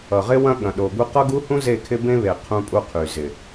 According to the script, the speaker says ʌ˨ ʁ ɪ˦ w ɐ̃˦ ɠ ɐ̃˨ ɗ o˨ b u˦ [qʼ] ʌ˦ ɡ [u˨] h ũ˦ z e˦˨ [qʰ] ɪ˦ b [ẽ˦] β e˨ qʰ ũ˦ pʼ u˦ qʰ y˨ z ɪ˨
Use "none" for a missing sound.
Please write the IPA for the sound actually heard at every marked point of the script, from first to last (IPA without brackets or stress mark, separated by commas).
q, u˦, kʰ, ẽ˦